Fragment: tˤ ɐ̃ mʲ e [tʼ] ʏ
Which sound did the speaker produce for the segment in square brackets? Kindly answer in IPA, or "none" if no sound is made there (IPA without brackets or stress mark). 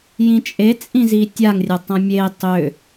tˤ